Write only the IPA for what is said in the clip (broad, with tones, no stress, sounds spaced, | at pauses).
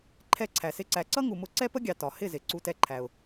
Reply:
ǃʰ ɛ˦˨ ǀʰ æ˨ s ɪ˦ ǀ æ˧ ǀ ʌ˦ ŋ u˨ m ʊ˧ ǀ ɛ˦ p ə˦ ɡʲ ɑ˨ t ɒ˨ h ɪ˦˨ z ɪ˨ ǀ u˧ t ɛ˧ ǃʰ æ˨ ʊ̯